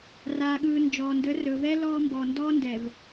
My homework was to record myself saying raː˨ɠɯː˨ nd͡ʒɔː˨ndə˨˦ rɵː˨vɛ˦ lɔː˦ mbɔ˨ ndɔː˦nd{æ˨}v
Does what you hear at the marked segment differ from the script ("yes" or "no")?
yes